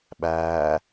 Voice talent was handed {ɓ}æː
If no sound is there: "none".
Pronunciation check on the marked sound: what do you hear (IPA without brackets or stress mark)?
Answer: ɓ